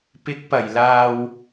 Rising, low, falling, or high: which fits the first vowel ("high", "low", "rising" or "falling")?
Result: rising